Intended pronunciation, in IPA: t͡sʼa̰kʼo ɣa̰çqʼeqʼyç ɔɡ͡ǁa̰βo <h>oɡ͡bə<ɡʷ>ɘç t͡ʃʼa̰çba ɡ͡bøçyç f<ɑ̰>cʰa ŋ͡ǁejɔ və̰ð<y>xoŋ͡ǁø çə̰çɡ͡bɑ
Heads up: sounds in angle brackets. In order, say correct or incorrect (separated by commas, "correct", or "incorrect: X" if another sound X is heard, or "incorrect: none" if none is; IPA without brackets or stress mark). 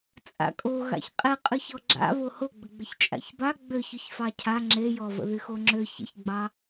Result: correct, incorrect: ɡ͡b, incorrect: ɑ, correct